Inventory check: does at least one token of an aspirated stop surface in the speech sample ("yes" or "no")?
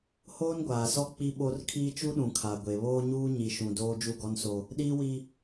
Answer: yes